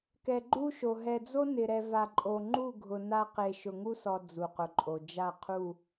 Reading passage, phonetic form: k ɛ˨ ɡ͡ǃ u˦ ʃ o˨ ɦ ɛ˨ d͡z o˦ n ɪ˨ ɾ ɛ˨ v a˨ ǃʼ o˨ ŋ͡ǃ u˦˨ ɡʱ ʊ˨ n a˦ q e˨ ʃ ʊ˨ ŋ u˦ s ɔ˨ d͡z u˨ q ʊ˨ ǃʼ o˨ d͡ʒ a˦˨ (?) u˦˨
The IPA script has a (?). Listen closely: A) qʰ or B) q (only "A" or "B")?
A